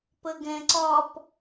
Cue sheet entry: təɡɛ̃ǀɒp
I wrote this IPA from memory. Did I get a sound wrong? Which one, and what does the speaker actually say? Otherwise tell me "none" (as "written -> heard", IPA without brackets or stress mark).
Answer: t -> p